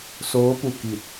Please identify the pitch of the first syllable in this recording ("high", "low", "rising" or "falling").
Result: rising